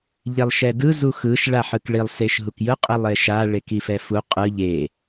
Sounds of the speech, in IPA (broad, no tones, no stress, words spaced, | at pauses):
ʎelˠʃɛdɯ zuxɯʃ ɭaħɯkɭilˠ seʃɦukjɯ qʼilˠeʃa ɭekifɛfu qʼɯ ʎe